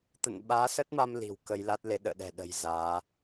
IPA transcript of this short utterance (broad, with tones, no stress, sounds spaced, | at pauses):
t̪ ə̰˧˨ n ɓ aː˨˦ s ə˦˥ t̚ m a˧ m l i̤˨˩ w k ə˧ j l a˦˥ t̚ l e˨˦ ɗ ə̰ː˧˨ ɗ ɛ̤˨˩ ɗ ə̤˨˩ j z aː˨˦